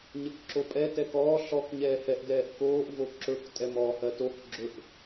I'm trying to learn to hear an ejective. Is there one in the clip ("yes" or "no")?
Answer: yes